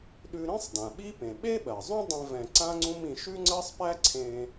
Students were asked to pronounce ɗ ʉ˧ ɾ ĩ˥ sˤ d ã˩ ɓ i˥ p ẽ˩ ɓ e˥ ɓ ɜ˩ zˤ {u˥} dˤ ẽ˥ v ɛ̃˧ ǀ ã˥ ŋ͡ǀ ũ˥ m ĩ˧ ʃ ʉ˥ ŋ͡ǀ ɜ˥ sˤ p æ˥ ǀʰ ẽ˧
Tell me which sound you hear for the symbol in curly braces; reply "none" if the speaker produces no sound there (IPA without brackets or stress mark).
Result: ũ˥